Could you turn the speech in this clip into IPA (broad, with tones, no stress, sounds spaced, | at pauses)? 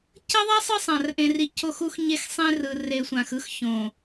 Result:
c ʌ˦ ðˤ a˦ sˤ ɯ˦ sˤ ã˨ r ʔ ẽ˨ r i˨ c o˦˨ x u˦ x ɲ e˦ x sˤ ẽ˦ r ɯ˨ r e˨ sʷ ã˨ x ɯ˦ x ç õ˨